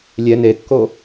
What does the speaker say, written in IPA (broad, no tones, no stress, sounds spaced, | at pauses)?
lʲ ɛ n e kː o